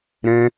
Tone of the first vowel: high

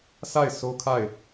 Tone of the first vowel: falling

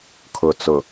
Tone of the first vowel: low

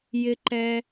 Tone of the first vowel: high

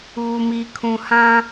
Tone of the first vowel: low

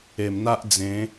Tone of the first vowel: low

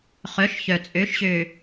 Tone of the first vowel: rising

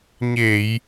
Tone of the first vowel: low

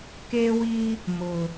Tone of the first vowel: high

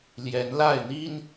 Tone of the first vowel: rising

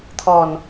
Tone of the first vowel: low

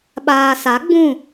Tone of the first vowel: low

